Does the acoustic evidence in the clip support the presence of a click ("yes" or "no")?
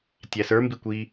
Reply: no